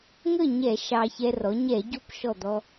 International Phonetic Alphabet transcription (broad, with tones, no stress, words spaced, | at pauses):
ŋə˥˩ɲɛ˧˩˧ ʃɑ˧çɛ˧rɔ˩˥ ɲɛ˧˩˧ɟo˧˥pʃɔ˧˩ d̪ɔ˧